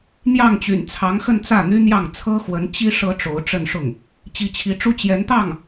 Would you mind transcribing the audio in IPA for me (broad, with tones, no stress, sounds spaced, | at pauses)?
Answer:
n̪ j ɑ˥˩ ŋ t͡ɕ y̰˨˩ n t͡sʰ ɑ˧˥ ŋ x ə˥˧ n t͡s ä˥˩ n̪ y˥ n̪ j ɑ˥˩ ŋ t͡sʰ ɤ˥ x w ə˧˥ n t͡ɕ i˥ ʂ ɤ˥ ʈ͡ʂ o˧˥ ʊ̯ ʈ͡ʂ ə˥˧ n ʂ ʊ˥˩ ŋ | t͡ɕ i˧˥ t͡ɕʰ i˧˥ ʈ͡ʂ u˥ t͡ɕ j ɛ˧˥ n t̪ ɑ˥˩ ŋ